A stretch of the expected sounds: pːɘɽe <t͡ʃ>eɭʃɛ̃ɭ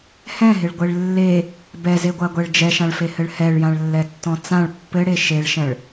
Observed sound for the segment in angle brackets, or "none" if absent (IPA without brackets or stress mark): ʃ